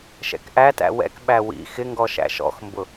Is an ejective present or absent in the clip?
absent